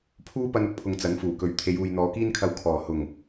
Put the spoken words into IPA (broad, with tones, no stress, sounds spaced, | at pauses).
pʰ uː˥ p ɐ˥ n ʊ˧ k̚ pʰ ʊ˧ ŋ t͡s ɐ˨˥ n f uː˨˩ k ɵ˨˧ ɥ t̪ʰ e˨˧ j uː˨ j n̪ ɔː˨˧ k iː˥ n kʰ ɐ˧ w kʰ ɔː˨˩ h ʊ˨˩ ŋ